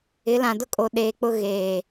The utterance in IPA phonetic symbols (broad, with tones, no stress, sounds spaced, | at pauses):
ɪ˨˦ l ã˨ d ʊ˦ kʼ o˨ ɗ eː˨ k͡p ʊ˦ ɣ eː˨